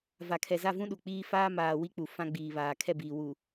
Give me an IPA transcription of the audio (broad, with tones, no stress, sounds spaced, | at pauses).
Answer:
v a˨ kʰ ɛ˨ z a˦˨ v ũ˦ ɗ u˨ k͡p iː˦ f aː˦ m aː˨ w i˦ k͡p u˨ f ã˦ ɡ͡b iː˨ β aː˨ kʰ ɛ˦˨ b iː˨ w u˨